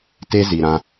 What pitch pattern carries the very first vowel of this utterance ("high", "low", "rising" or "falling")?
high